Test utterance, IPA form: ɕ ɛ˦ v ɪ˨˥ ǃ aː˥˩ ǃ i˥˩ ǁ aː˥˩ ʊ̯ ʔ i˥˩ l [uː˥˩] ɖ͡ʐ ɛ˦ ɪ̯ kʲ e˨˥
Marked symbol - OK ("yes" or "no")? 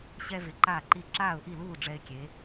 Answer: yes